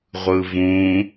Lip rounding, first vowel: unrounded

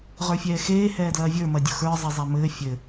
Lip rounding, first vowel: unrounded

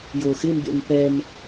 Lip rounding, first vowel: rounded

